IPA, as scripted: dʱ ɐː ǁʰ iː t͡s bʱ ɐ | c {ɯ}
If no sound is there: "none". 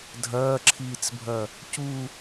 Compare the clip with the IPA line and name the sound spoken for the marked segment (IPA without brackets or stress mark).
u